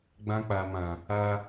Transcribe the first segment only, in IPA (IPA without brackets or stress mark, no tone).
ɡ͡b